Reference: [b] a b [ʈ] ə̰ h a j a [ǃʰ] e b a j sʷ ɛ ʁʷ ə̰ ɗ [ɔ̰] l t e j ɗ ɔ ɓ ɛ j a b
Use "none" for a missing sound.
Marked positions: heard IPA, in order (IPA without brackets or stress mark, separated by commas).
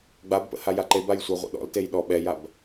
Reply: ɡ͡b, p, ǃ, ɔ̰